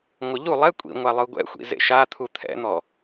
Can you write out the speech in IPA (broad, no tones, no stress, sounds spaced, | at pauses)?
ŋʷ ɤ ʎ u lˠ ɛ kʷʼ ḭ ŋʷ a lˠ ɯ ɡʷ ɛ̰ xʷ ḭ z ḛ ʃ a t̪ʰ u t̪ʰ ɛ̰ n̪ ɔ